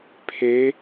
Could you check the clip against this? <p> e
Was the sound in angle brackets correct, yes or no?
no